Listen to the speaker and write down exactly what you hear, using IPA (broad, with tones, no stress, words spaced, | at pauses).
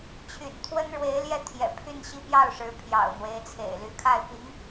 t͡ɕʰy̰˨˩nt̪ʰwə˥nɻwe˧˥ɪ̯ljɛ˥˩ t̪ʰjɛ̰˨˩pʰy˥˧n ɕi˥˧pjɑ˥˩ʊ̯ʂɻ̩˧˥ pʰjɑ̰˨˩ʊ̯n̪we˧˥ɪ̯t͡sʰḛ˨˩ɪ̯ ly˧˥kʰa˥˩ɪ̯ pi˧˥ŋ